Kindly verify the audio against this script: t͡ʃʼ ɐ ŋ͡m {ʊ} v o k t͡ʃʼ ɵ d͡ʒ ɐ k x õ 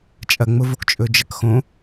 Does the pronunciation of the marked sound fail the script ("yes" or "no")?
no